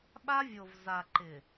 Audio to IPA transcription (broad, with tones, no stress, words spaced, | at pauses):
ɓa˦vʲo˨vza˨ ǃɪ˨